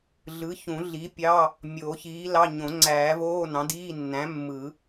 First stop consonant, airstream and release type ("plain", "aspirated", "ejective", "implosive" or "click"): plain